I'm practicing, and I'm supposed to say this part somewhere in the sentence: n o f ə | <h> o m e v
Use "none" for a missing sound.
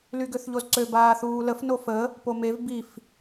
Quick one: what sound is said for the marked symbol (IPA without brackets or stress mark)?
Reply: p